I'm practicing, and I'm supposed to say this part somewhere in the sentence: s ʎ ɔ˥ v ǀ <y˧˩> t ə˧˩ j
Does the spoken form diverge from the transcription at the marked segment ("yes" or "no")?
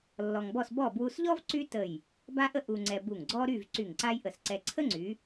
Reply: yes